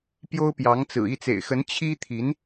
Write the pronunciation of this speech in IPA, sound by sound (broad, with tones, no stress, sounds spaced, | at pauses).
p j o˥ ʊ̯ p j ɑ˧˥ ŋ t͡s ɹ̩˨˩ i˥˩ t͡s ḛ˨˩ ɪ̯ x ə˧˥ n t͡ɕʰ i˥ t̪ʰ i˧˥ n